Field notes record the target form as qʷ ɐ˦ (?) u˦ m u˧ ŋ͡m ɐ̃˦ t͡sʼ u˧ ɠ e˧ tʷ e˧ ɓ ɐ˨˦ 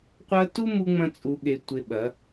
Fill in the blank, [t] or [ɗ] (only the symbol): t